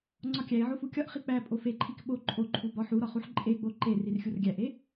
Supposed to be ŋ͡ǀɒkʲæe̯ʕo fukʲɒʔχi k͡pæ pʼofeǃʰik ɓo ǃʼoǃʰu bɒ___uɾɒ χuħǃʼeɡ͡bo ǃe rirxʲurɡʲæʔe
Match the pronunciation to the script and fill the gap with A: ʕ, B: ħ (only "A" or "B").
B